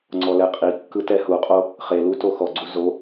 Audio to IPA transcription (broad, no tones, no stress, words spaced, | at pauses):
ŋ͡ǀɔlɛqʼikːɯ tɛhuqʼo | χelu toxɔɡ͡ǀu zo